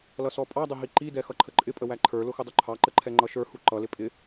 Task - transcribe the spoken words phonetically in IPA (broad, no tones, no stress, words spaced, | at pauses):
lʌsɔpʼɑdˤʊ ɦiǃidɛ xʌǃʰəǃʼɪpʼə wæǃʰə˞lʊ xʊdˤuǃʰɑǃə ǃʰɛŋ͡ǃʌʃə˞hu ǃʌlɪ pʼɪ